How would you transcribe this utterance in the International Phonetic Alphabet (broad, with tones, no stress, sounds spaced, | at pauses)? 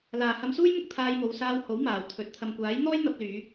l aː˨ h ɐ˧ m s uː˥ j m ʊ˥ k̚ t̪ʰ aː˧ j m o˨˧ w s aː˧ w h o˨˥ w m aː˨˩ w t̪ʰ ɵ˨ t̚ t̪ʰ ɐ˨ m kʷ aː˨˥ j n̪ ɔː˥ j n̪ ɐ˧ p̚ l yː˨˧